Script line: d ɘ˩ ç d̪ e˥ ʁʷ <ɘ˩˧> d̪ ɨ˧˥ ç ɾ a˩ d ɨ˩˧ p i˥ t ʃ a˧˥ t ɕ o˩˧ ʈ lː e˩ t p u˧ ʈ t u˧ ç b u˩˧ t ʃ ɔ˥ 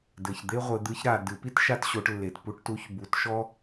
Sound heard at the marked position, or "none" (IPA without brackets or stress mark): ɘ˩˧